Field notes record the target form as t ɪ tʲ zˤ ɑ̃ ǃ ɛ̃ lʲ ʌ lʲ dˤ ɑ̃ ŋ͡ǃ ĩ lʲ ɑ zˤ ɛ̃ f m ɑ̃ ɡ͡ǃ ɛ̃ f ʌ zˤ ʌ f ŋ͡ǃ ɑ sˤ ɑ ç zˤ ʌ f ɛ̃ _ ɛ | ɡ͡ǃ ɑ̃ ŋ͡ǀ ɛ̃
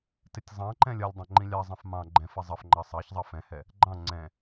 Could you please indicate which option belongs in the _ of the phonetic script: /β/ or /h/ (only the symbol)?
h